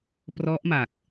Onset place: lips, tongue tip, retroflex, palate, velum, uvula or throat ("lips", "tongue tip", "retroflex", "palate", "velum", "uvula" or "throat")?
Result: lips